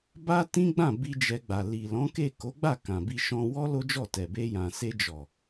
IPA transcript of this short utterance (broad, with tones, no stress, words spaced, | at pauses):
ba˦tĩ˦ɡ͡bã˦˨ bi˧ d͡ʒɛ˧ɡ͡ba˨ li˨lɔ̃˨˦ke˦˨ ko˨˦ɡ͡ba˦˨ kã˨bi˧ ʃɔ̃˧wɔ˦ lo˦d͡ʒɔ˦˨ tɛ˨be˧jã˨ se˧d͡ʒɔ˨